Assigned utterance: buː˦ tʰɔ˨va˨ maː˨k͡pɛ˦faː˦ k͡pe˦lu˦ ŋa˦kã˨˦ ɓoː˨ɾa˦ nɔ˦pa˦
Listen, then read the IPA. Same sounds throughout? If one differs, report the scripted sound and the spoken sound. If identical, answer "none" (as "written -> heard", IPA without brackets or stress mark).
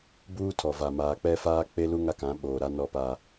none